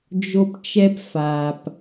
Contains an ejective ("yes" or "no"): no